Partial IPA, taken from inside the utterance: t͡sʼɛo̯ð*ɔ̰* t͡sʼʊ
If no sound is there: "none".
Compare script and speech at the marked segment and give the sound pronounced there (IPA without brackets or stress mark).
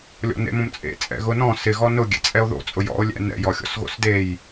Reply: o̰